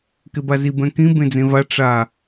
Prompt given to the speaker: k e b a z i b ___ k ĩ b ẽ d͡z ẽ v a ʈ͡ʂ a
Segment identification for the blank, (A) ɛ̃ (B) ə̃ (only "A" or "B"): A